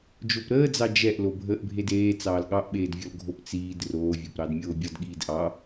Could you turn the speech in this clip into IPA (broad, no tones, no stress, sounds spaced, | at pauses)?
d͡ʒ o p ɾ əː d͡z ɑ d͡ʒ ɛ ʔ l o bʱ əː ʔ bʱ e d eː t͡s ɑː l ɠ ɑ ʔ ɓ eː d vʲ ɔ l ɡʱ o p t͡s iː d r oː vʲ o p ɾ ɑ d mʲ oː bʲ ɔ d ɠ iː d ʔ ɑ